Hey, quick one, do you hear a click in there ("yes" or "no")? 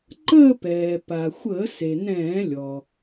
yes